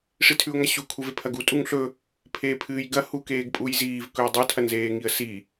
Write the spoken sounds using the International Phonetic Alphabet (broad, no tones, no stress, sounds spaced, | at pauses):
ʂ i tʰ ʉ ʊ̯ ŋ a ɕ u kʰ u v e pʰ ɐ ɡ u tʼ u ŋ ɬ ɵ | pʰ eː pʰ ɨː j ɡ ɐ h u k eː ɡ pʼ u j z iː v k ɵ ʊ̯ dˤ ɵ tʰ ɐ n z eː ŋ i ə̯ s i